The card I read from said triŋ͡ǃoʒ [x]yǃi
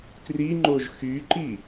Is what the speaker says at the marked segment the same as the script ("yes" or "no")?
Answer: yes